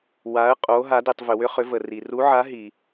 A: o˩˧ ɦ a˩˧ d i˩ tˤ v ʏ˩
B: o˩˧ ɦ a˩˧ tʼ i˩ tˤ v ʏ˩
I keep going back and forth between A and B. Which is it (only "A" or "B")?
A